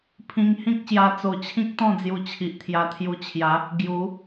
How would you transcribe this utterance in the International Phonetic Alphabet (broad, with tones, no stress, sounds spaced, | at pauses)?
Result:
pʰ ĩ˧ ŋ h ĩ˦ k̚ ɕ j a˧ t͡s o˨˩ t͡ɕʰ ĩ˦ k̚ t̪ ɔ̃˥˧ d͡z j u˧ t͡ɕʰ i˨ ʔ t̪ʰ j a˧ t̪ʰ j u˧ t͡ɕʰ j a˨˦ | ɡ j u˨˦